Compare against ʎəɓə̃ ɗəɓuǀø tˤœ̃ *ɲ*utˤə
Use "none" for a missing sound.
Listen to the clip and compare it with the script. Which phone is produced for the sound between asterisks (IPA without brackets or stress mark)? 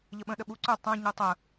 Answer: ɲ